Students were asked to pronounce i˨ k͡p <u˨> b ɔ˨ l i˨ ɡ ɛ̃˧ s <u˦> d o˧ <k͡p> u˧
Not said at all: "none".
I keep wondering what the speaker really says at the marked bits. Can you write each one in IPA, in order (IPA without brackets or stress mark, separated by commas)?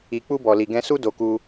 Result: u˧, u˦, k